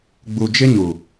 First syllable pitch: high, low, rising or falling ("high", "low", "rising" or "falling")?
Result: low